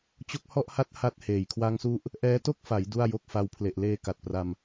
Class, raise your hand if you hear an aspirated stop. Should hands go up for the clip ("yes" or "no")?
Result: yes